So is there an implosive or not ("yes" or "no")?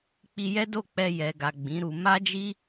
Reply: no